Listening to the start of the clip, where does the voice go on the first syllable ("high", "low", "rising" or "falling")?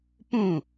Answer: falling